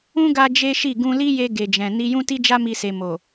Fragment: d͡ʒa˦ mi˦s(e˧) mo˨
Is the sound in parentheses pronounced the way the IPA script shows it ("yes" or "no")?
yes